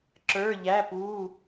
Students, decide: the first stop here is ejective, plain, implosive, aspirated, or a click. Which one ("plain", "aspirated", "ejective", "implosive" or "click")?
click